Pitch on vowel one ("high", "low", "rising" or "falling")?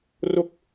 falling